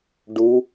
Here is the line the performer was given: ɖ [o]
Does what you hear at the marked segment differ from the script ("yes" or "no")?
yes